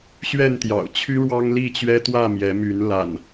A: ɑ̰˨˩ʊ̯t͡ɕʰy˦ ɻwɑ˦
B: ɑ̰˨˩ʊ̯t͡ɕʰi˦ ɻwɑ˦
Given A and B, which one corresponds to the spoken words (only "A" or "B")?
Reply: A